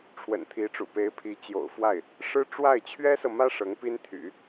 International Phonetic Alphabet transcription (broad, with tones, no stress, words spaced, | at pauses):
ʈ͡ʂʰwə̰˨˩nt̪ʰi˧˥ʈ͡ʂṵ˨˩ pe˧˥ɪ̯ pʰi˧˥t͡ɕjo̰˨˩ʊ̯fwa˥˩ɪ̯ | ʂɻ̩˥ ʈ͡ʂwa˥˩ɪ̯ t͡ɕʰɥɛ˥sɤ˨mä˥ ʂɤ˧˥ŋpi˥nt̪ʰy̰˨˩˦